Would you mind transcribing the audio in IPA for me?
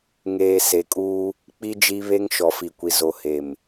ŋ eː˨ s e˨ kʼ uː˦ | k͡p i˦ d͡ʒ i˦ β e˦ ŋ ʃ ɔ˨ f i˨ kʷ i˨ z o˨ h e˨ m

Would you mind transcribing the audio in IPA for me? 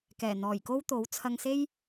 k ɛː˨˩ n̪ ɔː˨˩ j k o˥ w t̪ o˨˥ w t͡sʰ ɐ˧ ŋ s e˥ j

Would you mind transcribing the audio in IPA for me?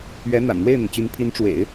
ɥ ɛ˧˥ n̪ a̰˨˩ n n̪ w e˥˩ ɪ̯ n̪ ə˩ n t͡ɕ y˧˥ n pʰ i˧˥ n ʈ͡ʂ w ḛ˨˩˦ ɪ̯

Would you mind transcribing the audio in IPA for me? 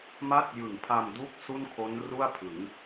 m a˥˩ t̚ j ɯ˨˩ ŋ pʰ a˧ m d u˥˩ k̚ s u˥˩ n kʰ o˦˥ n r u˥˩ a̯ pʰ ɯ˩˦ ŋ

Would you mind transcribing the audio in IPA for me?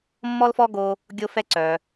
mː ɔ˥ l f ɔ˥ ɡ o˦ | ɡʲ o˦ f ɛ˦ ǀ œ˨

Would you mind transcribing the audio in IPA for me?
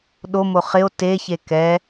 ɗ o m o χ ɪ o̯ t e ç e k ɛ

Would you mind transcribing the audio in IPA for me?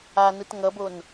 a n ɯ t ŋ ʌ b o n

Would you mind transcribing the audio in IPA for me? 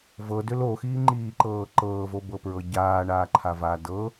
v ɤ d ʏ l o x iː ŋ͡ǃ iː ǃ ɤː ǃ ɤː v o b ɤ p ɹ ɤ ɟ aː ɳ aː ǃʰ a v aː d ɤ

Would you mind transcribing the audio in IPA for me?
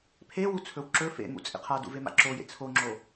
pʰ e w u t͡sʰ ɵ w ǁ ɵ f ḛ m ṵ t͡sʼ ḛ qʰ a d ṵ v e m a̰ ǁ o j ḛ t͡sʰ o ŋ͡ǁ o

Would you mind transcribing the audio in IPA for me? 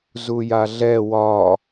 z u j a ɮ ɛ w ɒ

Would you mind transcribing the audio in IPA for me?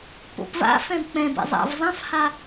p o̰ p v a̰ f ɛ̃ b k͡p ɛ̃ b ḛ zˤ a̰ v zˤ ã f h a

